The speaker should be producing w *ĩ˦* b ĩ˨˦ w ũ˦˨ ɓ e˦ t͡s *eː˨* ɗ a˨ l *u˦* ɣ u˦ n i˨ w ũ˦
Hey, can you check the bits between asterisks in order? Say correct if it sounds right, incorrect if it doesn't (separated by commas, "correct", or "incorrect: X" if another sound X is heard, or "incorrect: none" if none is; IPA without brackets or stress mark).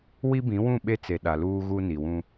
incorrect: i˦, incorrect: e˨, incorrect: uː˦